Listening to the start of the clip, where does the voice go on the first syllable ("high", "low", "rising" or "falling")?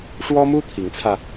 high